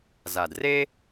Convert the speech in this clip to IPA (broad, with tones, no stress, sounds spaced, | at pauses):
z a˨ d r e˥